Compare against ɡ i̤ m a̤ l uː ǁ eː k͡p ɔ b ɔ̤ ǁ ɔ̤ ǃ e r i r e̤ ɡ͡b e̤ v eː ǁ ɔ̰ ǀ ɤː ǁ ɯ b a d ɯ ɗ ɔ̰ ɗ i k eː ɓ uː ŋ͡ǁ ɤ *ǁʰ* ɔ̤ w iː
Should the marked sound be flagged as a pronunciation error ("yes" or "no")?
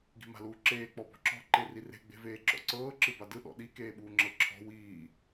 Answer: no